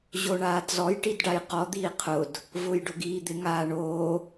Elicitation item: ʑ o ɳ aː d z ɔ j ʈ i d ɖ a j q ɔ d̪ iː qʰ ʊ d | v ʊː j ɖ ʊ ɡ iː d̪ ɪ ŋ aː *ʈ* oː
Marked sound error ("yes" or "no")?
yes